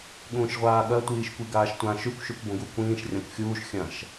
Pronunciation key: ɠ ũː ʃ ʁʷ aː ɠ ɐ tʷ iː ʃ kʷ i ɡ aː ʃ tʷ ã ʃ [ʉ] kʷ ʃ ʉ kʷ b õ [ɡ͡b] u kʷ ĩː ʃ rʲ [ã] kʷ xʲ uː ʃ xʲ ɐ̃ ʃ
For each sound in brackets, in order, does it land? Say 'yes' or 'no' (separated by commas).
yes, no, yes